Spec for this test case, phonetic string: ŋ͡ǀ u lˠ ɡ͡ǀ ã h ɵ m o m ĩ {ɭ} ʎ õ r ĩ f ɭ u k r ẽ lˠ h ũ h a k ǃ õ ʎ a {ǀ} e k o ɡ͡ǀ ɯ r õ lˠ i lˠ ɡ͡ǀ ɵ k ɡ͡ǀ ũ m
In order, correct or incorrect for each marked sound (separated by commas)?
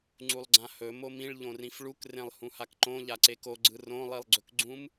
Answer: correct, correct